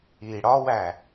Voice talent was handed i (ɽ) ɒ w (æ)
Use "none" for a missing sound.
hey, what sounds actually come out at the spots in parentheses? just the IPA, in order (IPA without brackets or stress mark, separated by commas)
ɽ, æ